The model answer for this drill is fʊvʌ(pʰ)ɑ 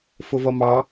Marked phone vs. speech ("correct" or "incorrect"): incorrect